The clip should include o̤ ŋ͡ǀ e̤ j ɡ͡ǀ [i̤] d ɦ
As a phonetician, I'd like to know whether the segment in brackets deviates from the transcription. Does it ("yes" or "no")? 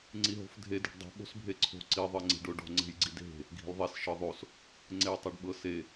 yes